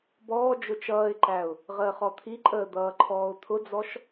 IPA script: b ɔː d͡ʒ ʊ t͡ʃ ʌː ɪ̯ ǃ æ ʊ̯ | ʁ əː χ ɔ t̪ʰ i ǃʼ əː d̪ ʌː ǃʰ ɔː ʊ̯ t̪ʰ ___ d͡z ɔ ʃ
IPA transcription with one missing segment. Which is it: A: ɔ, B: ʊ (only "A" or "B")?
B